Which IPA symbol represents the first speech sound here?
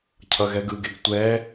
cʰ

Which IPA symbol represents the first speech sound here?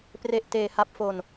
p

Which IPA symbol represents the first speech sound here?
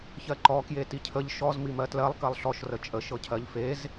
ç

